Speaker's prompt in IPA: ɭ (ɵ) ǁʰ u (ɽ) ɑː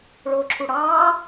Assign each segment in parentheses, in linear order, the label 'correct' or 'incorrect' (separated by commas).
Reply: incorrect, correct